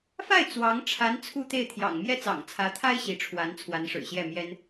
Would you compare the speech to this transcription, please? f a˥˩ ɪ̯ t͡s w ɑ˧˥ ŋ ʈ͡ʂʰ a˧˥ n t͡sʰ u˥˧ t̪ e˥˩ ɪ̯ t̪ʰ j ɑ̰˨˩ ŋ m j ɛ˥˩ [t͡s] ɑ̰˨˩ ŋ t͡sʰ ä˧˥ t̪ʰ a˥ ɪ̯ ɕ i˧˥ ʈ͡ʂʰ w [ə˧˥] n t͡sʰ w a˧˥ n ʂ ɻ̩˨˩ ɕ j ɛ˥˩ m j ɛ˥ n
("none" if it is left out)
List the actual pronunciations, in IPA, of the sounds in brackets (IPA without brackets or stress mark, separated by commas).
t͡s, a˧˥